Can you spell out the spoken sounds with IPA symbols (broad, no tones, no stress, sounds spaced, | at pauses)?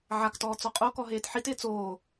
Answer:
ʕ a k t ɔː t͡s ɔ qʼ o k ɔ ɦ eː t ħ i t ɪː t͡s oː